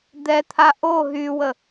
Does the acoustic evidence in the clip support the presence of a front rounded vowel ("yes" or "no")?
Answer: yes